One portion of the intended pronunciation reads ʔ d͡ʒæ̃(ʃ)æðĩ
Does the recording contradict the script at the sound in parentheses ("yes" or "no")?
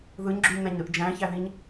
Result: yes